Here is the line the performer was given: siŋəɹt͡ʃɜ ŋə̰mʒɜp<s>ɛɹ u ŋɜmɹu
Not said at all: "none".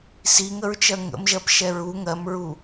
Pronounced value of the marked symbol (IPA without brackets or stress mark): ʃ